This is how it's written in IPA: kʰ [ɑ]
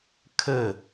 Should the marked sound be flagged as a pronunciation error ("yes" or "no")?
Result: yes